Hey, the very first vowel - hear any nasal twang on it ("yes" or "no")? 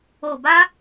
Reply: no